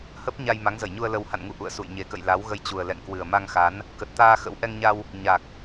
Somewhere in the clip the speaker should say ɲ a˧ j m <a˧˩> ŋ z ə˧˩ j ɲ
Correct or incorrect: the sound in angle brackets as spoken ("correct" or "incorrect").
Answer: incorrect